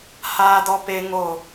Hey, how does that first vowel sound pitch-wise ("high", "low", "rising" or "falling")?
high